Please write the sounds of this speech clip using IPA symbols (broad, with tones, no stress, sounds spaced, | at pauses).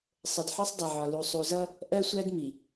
sˤ ə˨ d ħ ɒ˦ sˤ dˤ ʌ˨ ʕ ɒ˨ l u˨ sˤ u˨ z ʌ˦ | ʔ ɜ˦ sʷ æ˦ d m i˨